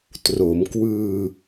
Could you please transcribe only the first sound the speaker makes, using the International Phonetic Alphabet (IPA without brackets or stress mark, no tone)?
t